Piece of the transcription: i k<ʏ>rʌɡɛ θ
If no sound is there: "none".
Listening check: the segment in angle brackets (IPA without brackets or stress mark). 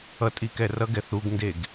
ɛ